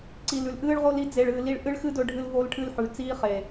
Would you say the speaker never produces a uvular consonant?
no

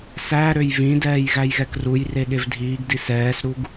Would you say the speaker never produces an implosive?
no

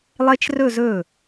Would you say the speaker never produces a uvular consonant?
yes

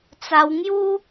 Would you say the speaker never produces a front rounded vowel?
yes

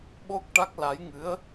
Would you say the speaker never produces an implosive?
no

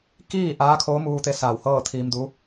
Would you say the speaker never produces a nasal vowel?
yes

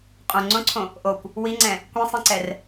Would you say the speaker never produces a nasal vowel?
no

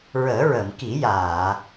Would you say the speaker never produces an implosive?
yes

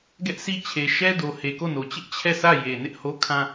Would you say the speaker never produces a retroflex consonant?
yes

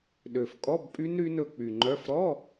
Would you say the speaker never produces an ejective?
no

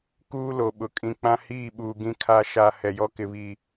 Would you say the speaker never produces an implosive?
no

